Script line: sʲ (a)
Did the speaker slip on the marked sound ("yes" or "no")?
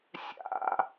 yes